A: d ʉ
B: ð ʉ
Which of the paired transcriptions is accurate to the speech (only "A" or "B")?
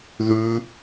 B